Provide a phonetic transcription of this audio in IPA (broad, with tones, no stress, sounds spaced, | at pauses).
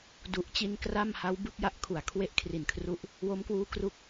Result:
d u˨˩ ʔ t͡ɕ i˧ n k r a˥˩ m h a˦˥ w b ɯ˦˥ k̚ j a˦˥ ʔ kʰ u˨˩ a̯ kʰ w e˦˥ ʔ kʰ r i˨˩ n kʰ r u˦˥ ʔ | w o˦˥ m k w uː˦˥ k r u˦˥ k̚